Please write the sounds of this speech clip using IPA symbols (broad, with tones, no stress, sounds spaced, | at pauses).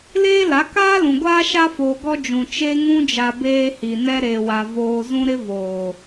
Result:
l eː˦ l a˨˦ k aː˦ l ũ˨ ɡʷ aː˦ ʃ a˦ f oː˨ ɡ ɔ˦ d͡ʒ ũ˨ t͡ʃ e˦ ŋ ũ˦ d͡ʒ a˨ b eː˦ h i˨ n ɛ˦ ɾ e˨ w a˨ v oː˦ z ũ˦ ɾ ɪ˦ v oː˨